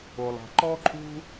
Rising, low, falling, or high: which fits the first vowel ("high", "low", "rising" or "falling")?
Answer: low